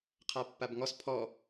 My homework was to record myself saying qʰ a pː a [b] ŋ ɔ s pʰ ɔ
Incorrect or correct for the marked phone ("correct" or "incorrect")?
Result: correct